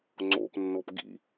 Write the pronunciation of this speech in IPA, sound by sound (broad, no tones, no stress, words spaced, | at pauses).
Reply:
ŋ͡ǀo̰pnːop ɡḭ